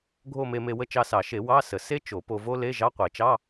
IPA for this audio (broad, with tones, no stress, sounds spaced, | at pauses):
ɡʱ o˥˧ m e˧ m e˧ w ə˥˧ t͡ʃ ɑ˧ s ɑ˨˩˦ ʃ e˨˩˦ w ɑ˧˥˧ s ə˨˩˦ s e˥ t͡ʃ o˨˩˦ p o˧ v o˥ l e˧˥˧ ʒ ɑ˧˥˧ qʷ e˨˩˦ t͡ʃ ɑ˧˥˧